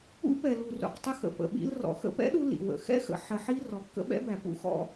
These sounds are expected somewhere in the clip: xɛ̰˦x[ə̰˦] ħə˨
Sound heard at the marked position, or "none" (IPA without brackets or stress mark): ə̰˨